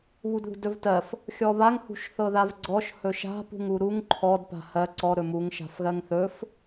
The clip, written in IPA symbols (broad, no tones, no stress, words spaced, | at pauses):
βudðṳdɵvtɜf | xʲɔβaŋ hṳʃθɤðavɡ͡ǀɔʃ hɵʃa̤ pṳŋuɾuŋ ǃʰɔd pa̤hɜ ǀɔ ɾɵmuŋ ʃa̤fɣɜŋθɵf